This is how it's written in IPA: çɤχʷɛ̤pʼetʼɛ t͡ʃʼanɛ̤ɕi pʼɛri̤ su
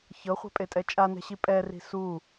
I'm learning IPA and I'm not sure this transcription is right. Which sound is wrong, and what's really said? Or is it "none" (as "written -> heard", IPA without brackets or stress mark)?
none